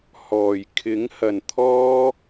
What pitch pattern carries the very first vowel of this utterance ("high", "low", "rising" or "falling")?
low